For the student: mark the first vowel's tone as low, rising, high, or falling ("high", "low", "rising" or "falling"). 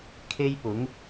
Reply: high